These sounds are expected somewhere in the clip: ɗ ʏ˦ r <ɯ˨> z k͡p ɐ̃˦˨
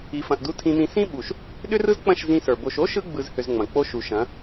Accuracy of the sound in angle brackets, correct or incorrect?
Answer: incorrect